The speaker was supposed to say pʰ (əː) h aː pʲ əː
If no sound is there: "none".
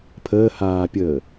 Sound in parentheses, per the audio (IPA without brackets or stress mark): əː